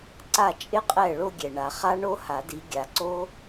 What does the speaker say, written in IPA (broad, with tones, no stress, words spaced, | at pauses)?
ǀa˥˩t͡ʃʼɪ˥˧ qʼɛ˥˩ ɭo˥˧ɡʲɛ˨ɳa˨ χa˦˥ɳo˦˥ha˨˩˦di˨˦ ɡʲa˨ǀo˦˥